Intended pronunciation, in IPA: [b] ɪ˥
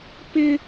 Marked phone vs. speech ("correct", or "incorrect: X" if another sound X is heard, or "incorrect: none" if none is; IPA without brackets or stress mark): incorrect: p